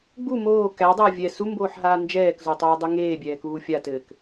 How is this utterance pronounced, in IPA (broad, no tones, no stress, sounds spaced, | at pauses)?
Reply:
ɡ͡b u m oː k æ dˤ ɘː vʲ ɛ s u m b oː ħ ɦ aː n d͡ʒ ɛː k z o tˤ oː dˤ ɯ ŋ eː bʲ ɛː k uː fʲ a t ɘː k